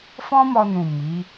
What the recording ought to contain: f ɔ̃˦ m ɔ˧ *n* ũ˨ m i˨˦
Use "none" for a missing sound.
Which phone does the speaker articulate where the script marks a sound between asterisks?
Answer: n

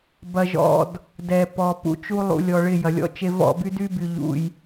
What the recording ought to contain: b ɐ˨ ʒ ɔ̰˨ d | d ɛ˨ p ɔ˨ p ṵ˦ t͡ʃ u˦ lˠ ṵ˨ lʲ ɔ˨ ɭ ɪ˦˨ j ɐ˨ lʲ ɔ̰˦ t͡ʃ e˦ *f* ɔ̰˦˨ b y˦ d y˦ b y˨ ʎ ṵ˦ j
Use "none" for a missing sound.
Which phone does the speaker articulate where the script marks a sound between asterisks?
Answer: v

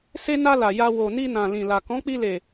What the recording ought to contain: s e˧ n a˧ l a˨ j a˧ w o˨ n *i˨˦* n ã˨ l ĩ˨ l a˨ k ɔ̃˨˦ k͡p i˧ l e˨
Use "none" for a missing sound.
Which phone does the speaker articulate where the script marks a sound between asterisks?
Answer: i˧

